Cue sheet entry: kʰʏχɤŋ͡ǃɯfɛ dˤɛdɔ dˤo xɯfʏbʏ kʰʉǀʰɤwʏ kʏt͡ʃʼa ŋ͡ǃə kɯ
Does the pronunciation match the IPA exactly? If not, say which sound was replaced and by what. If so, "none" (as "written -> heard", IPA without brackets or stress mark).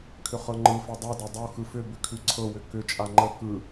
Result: none